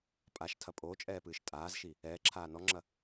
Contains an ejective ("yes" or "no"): yes